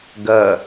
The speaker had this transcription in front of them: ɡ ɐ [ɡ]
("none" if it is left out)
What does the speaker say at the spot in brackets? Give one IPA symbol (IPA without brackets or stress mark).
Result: none